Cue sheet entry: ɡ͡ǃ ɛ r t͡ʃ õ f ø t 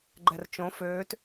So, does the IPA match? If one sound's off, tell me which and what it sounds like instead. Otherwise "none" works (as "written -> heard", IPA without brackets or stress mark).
none